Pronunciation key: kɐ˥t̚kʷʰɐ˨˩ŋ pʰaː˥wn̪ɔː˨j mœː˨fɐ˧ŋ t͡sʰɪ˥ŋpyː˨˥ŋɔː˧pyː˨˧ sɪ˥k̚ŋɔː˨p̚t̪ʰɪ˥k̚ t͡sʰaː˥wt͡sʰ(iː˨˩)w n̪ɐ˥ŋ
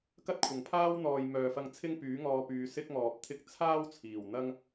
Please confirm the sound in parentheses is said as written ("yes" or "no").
yes